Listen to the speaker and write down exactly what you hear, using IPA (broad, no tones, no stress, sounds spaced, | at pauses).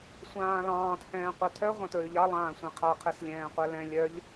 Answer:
sʷ ãː l ɑ̃ː t h ɛ̃ː qʷ a tʰ œ ʁʷ ã t ɹ ʉ ʎ ɑ lˠ ãː sʷ ɛ̃ qʰ a qʰ e s lʲ ɛ̃ː qʷ ɛ l ɛ̃ lʲ œ ʎ